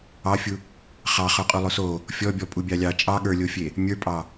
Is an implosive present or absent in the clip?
present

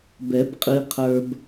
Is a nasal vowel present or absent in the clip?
absent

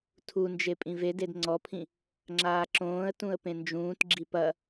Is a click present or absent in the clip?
present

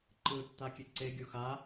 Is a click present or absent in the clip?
present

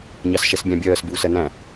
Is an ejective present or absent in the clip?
absent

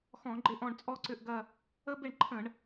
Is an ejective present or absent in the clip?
present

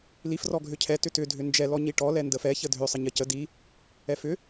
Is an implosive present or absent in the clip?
absent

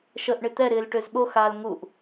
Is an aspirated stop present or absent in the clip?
absent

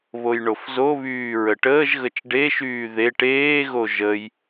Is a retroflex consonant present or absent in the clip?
present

